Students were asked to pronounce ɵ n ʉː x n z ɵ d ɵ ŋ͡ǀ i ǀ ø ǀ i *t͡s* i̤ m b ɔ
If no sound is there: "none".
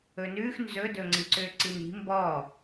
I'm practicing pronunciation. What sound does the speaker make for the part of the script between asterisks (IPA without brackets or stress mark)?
n